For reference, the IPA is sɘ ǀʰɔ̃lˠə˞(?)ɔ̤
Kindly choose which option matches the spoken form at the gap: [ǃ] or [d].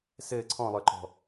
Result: ǃ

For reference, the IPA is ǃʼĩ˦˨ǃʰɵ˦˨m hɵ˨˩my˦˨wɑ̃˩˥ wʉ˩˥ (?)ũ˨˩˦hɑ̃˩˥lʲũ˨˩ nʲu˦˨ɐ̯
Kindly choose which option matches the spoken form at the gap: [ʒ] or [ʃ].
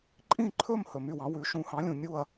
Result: ʃ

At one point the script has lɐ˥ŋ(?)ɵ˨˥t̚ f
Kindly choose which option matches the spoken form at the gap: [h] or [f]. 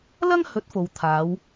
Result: h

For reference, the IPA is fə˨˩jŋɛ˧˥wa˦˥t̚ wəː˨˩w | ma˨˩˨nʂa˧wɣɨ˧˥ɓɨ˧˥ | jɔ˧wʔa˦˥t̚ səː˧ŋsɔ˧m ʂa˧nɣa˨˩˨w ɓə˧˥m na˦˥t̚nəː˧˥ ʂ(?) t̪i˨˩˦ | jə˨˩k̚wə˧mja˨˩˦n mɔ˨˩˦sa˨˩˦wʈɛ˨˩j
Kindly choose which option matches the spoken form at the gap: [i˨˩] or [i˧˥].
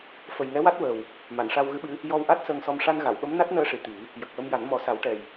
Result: i˨˩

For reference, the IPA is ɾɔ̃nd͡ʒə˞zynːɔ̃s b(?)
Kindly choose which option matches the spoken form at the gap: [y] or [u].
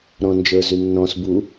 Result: u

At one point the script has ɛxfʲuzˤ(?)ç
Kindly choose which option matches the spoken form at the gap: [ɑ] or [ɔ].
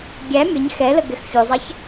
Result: ɑ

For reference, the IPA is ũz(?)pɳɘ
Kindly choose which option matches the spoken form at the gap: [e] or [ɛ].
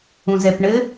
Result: ɛ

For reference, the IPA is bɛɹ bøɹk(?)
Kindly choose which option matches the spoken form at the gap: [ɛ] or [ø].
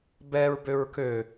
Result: ø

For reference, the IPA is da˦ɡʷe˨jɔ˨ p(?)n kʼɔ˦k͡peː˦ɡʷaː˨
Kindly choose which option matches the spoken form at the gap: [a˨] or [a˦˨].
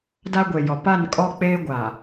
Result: a˦˨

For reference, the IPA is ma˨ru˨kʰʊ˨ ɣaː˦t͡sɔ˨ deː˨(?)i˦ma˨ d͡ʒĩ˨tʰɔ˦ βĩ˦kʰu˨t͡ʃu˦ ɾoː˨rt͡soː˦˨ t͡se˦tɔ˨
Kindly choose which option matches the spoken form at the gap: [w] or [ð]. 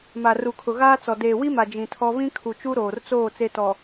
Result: w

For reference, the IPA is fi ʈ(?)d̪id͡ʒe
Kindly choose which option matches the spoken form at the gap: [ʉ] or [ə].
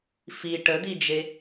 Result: ə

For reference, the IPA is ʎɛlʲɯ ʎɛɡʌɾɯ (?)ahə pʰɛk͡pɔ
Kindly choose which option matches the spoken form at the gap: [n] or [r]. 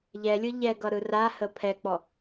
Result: r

